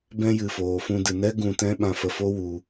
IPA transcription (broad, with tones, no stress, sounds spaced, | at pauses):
b ɛ̃˦ j ɨ˨ f oː˨ f ũ˧ d ɨ˨ n ɛ˦ ɡ ũ˧ t ɛ̃˦ ɓ ã˧ f ə˧ f o˦ w u˧